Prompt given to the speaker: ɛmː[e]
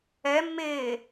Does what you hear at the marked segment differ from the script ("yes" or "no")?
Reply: yes